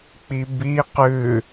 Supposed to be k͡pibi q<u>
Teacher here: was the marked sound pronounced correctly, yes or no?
no